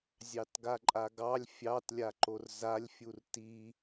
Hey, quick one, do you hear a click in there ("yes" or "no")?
yes